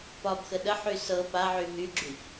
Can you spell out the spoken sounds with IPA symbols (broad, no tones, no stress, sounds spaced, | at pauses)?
p ɒ b x ə ɗ ə ħ y s ɤ p a ʕ y ɦ y ɡ͡ǁ y ç